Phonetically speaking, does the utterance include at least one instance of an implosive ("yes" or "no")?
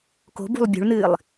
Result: no